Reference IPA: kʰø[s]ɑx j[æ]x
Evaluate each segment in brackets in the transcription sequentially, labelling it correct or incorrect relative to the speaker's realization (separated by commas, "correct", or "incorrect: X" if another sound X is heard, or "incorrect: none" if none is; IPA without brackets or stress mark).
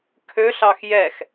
incorrect: ɬ, incorrect: ɛ